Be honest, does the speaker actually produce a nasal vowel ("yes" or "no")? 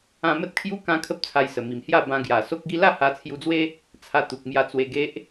yes